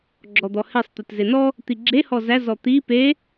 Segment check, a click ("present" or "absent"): present